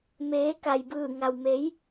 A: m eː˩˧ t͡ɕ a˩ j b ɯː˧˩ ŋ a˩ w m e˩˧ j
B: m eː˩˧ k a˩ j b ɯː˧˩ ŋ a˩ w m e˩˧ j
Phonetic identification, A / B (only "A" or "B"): B